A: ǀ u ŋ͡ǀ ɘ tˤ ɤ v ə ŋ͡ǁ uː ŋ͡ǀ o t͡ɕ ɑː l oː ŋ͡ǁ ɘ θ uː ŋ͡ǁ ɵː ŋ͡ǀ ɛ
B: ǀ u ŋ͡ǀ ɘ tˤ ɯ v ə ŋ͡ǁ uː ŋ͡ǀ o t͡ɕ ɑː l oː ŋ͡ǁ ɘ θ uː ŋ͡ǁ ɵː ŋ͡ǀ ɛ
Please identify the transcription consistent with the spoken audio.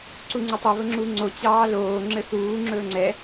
A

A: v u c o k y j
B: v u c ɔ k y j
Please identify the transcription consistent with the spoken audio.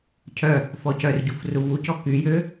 B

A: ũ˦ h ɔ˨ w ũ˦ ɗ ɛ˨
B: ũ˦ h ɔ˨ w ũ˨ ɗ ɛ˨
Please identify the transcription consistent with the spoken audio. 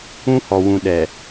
B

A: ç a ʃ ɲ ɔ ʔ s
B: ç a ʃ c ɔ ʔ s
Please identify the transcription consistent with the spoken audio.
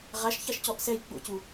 B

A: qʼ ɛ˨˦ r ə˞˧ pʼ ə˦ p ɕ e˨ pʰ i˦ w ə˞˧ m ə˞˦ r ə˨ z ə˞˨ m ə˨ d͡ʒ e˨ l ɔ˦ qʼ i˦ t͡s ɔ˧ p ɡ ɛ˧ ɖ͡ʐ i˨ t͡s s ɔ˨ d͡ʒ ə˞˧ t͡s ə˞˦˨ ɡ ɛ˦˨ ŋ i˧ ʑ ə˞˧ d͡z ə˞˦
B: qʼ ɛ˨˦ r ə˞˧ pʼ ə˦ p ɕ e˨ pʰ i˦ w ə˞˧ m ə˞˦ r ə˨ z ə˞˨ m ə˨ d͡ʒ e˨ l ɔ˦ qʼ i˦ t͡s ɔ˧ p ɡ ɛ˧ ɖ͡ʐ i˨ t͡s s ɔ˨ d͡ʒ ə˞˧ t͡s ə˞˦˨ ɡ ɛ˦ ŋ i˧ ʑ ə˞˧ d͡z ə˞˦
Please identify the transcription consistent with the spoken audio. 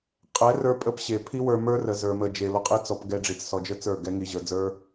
B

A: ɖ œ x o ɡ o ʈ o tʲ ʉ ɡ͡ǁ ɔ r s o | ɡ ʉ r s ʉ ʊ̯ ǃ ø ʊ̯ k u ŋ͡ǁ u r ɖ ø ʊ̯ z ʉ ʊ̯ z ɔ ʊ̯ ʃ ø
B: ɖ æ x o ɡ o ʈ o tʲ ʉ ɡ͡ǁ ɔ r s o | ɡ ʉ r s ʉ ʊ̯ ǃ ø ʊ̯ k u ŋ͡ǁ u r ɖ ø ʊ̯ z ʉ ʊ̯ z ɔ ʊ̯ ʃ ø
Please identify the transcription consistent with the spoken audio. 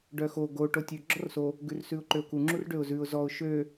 A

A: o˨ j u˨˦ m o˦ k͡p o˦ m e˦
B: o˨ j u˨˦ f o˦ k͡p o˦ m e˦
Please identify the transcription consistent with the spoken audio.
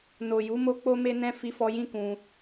A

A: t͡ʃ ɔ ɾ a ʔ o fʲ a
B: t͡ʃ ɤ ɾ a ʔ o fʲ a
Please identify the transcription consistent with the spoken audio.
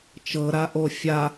B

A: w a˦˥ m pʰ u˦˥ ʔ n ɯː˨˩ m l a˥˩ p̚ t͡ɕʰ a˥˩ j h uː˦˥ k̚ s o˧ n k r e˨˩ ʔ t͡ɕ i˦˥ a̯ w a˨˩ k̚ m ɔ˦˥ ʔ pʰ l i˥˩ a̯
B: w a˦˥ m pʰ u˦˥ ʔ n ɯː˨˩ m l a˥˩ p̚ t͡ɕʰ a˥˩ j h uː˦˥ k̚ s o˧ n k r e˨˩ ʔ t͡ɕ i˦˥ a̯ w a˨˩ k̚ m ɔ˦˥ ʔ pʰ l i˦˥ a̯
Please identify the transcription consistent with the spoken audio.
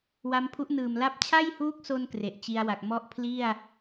A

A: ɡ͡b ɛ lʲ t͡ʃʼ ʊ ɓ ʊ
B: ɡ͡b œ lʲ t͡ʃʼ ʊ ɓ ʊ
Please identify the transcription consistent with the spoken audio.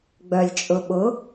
B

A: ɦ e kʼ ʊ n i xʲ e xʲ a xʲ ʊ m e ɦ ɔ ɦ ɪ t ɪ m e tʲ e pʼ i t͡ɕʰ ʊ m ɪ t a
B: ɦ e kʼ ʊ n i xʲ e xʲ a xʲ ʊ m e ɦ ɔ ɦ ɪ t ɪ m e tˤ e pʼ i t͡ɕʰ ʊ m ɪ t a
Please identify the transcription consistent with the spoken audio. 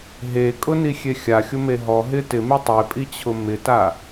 B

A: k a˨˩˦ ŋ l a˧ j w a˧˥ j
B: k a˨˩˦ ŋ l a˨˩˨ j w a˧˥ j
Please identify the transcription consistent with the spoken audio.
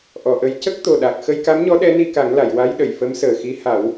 B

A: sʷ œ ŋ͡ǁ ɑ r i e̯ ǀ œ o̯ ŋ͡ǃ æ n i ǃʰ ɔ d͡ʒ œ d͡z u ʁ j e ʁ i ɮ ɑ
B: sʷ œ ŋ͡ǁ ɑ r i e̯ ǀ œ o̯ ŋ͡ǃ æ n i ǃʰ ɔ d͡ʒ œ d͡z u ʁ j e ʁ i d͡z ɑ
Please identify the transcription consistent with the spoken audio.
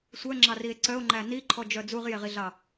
A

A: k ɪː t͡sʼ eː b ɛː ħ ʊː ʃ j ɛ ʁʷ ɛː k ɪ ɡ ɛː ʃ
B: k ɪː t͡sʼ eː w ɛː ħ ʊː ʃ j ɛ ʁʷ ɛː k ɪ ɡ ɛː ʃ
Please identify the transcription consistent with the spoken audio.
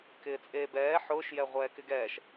A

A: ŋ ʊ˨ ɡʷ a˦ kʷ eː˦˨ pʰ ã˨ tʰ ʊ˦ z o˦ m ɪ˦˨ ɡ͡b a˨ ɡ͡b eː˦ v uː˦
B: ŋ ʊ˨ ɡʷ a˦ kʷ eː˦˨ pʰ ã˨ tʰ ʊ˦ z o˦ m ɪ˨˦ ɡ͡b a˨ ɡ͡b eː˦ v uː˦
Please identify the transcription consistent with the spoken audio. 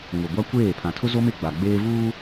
A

